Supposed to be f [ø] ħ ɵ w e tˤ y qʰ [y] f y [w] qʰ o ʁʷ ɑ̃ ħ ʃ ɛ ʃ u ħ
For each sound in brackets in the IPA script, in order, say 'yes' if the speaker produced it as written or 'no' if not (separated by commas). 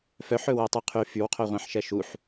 no, yes, yes